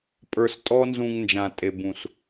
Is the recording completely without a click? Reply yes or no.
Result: yes